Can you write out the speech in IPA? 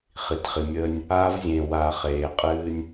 χ i˨ t χ i˨ mʲ əː˦ nʲ | aː˦ v zʲ ẽː˨ w aː˨ χ eː˨ qʼ ɨː˦ nʲ

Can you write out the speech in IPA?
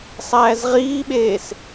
sˤ æː z ʁ iː ɓ eː s

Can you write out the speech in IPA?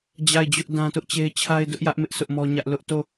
d͡ʑ a˦˨ ɪ̯ d͡ʑ ʊ˦ ʔ d ã˦ t ʊ˦ ʔ t͡ɕ e˦ ɪ̯ t͡ɕʰ a˦ ɪ̯ d ʊ˦ ʔ j ä˦ ʔ m ɪ˦ ʔ sʰ ʊ˦ ʔ m ɔ˦ ɲ ä˦ ʔ l ʊ˦ ʔ t o˦˨

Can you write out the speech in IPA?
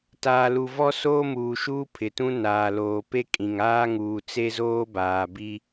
t aː˨ l u˨ v ɔ˦ s oː˦ m uː˨ ʃ uː˦ pʰ ɪ˨ t ũ˦ n aː˨ l oː˨ p e˦ kʼ ĩ˨ ŋ aː˦ ŋ uː˨ t͡s e˦ z oː˦ b aː˨ b i˦

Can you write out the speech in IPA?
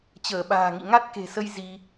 t͡ɕ əː˧˩ ɓ a̤ː˨˩ ŋ ḭ˧˨ ŋ a˦˥ t̚ k e̤˨˩ s ə˧ j z i˧

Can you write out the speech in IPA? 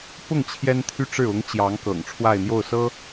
p ʊ˥˩ ŋ t͡ɕʰ j ɛ˥ n t̪ʰ y˥ ʈ͡ʂ ɻ̩˥˩ ʊ˧˥ ŋ t͡ɕ j ɑ˧˥ ŋ k ɤ̰˨˩ ŋ ʈ͡ʂʰ w a˥˧ ɪ̯ n̪ j o˥˩ ʊ̯ s ɤ˥

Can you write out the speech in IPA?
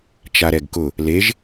t͡ʃ a ɾ ɛ ɡ k ʊ | l e ʒ

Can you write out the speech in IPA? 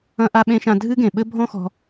ɐ̃˧ ʔ a˧ ɓ ẽ˧ ʃ ã˧ dʱ ɨ˦ ɡ ẽ˨ ɓ ɘ˦ bʱ ɔ̃˦ x ɔ̤˧

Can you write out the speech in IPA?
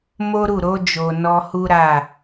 m o˦ ɾ u˦˨ ɾ o˧ d͡ʒ o˨ n ɔ˧ h u˦ ɾ a˦˨

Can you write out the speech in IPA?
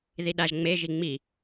ð i ɗ a ʒ ŋ͡m e ʒ i ŋ͡m i

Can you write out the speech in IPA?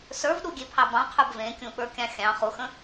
s ə˞ v ɗ u ɡʲ e pʰ ɑ b ɑ̃ qʰ ə˞ b v ẽ kʲ ũ ɓ ə˞ kʲ ɑ̃ xʲ ɑ̃ χ u x ə̃

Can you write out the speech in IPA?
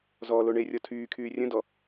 z ɔː l o ɳ e rʲ ɔ tʰ yː kʰ yː rʲ ə̃ d ɔ

